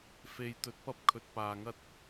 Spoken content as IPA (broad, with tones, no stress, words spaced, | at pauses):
fe˧jt̪ɵ˧t̚ pɐ˥p̚kʰɵ˧t̚paː˧ŋɐ˥t̚